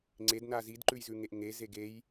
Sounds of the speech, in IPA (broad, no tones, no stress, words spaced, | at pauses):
ŋ͡ǀedna zidǃʉj zʉŋeʔŋeze ɡej